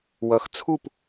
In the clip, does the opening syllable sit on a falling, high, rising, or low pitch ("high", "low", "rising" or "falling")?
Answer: rising